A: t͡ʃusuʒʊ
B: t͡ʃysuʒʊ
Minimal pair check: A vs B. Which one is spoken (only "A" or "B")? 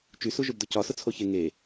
B